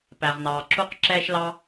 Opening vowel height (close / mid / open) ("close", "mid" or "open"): open